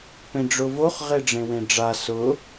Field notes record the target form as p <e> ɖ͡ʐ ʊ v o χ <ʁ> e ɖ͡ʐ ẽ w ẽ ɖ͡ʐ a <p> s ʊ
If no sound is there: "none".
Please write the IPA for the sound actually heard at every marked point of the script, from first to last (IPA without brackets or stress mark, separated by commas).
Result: ẽ, ʁ, none